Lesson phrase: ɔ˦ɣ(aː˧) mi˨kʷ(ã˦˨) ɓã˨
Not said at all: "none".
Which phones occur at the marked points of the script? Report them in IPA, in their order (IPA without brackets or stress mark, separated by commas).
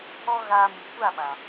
aː˧, a˦˨